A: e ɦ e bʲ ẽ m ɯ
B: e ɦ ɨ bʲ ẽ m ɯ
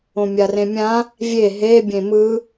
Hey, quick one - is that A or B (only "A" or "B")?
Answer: A